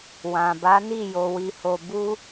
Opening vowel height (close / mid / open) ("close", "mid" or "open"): open